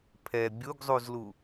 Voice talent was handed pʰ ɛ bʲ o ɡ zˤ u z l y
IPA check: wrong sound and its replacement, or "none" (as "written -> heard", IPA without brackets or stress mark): y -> u